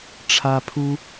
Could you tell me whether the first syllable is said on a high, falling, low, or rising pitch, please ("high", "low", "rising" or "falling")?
high